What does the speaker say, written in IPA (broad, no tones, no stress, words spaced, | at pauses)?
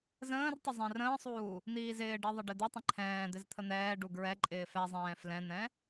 zə̃ːrtˤə zˤɛ̃rə̃ːsˤuː | n̪iːzɪːɖi ðˤəɖɪd̪itˤə̃ ǃʰɛ̃ː d̪ɪzt̪ʰən̪ɛːɖu ɡɹɛ ǃʼɪːfɛzˤɛ̃ː flɛ̃n̪ɛ̃